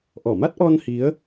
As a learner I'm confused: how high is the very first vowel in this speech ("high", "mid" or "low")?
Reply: mid